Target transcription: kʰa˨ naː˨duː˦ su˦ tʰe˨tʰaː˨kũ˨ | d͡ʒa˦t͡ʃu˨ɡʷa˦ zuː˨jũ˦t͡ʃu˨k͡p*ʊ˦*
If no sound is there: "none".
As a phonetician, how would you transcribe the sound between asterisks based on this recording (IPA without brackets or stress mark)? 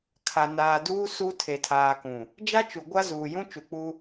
u˦